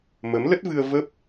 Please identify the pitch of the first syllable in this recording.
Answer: rising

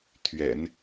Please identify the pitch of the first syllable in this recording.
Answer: low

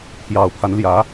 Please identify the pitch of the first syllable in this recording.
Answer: low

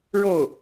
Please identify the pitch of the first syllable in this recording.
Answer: falling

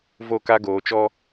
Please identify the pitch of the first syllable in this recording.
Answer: falling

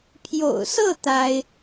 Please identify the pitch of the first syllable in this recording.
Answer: low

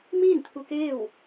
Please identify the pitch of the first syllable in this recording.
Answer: falling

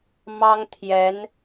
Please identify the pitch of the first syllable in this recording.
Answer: high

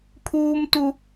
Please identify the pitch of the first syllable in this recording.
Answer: high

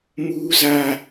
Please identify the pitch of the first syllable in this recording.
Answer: high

